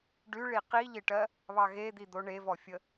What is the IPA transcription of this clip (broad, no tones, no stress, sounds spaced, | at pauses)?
ɖ y ɭ i q i ʎ ɪ ʈ ɜ | β ɑ ɣ e d̪ i d̪ o ɳ e v ɔ fʲ ə